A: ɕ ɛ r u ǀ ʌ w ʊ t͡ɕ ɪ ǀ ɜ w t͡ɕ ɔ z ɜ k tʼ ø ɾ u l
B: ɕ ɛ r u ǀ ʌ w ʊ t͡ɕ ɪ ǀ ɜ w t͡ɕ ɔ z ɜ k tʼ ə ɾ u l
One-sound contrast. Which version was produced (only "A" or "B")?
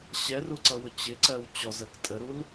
B